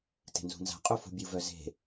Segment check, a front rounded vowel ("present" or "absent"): present